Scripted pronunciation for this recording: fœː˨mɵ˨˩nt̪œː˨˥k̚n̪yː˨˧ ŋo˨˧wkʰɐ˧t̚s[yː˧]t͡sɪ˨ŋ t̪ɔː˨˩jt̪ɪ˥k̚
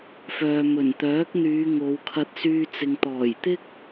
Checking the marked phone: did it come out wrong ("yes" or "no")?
no